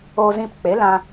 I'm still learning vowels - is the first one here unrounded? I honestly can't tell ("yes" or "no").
no